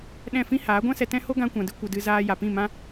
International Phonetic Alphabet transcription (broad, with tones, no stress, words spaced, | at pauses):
ɗɛ̃˦˨fĩ˦haː˨˦ ɡʷã˦sɛ˧ tɛ̃˦ ho˦ ɡã˦kʷã˧dɨ˦ kʷə˧dɨ˧ zaː˧ ja˨pĩ˦˨mã˦